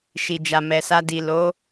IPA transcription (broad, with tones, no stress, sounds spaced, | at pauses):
ʃ i˨ d͡ʒ a˨ m ɛ˨ s a˧ d i˨ l o˨˦